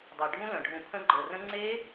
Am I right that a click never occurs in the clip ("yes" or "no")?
no